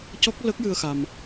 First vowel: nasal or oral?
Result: oral